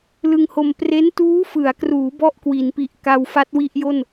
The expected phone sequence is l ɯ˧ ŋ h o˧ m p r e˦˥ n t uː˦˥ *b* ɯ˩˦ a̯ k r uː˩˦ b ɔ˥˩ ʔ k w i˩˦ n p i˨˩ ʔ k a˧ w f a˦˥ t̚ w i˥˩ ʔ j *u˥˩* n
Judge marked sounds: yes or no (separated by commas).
no, no